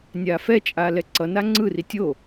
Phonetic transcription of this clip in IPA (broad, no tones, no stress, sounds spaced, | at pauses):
nʲ aː f ɛ t͡ʃʼ aː l ɛ ǀ ʌ n a ŋ͡ǀ ɯ r i tʲ o